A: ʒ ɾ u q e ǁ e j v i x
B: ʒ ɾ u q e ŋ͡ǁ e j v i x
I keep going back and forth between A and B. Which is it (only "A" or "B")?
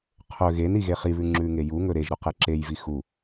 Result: A